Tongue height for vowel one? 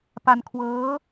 low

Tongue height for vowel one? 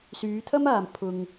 high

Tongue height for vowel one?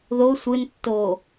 mid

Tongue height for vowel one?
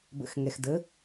mid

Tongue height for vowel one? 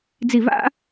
high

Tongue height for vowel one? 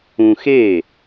high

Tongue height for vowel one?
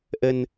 mid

